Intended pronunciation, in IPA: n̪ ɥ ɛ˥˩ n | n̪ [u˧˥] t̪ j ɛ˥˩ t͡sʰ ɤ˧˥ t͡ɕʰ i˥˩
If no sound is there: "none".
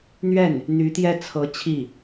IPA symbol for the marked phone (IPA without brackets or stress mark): y˧˥